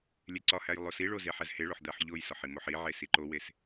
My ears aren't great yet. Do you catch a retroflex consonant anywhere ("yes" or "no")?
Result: yes